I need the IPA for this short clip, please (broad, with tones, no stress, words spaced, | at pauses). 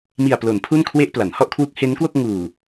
mi˨˩a̯plo˩˦n pʰu˥˩nkʰwe˥˩ʔpla˩˦n hɔ˥˩ʔkʰwu˦˥k̚he˦˥nkwo˥˩k̚ ŋuː˨˩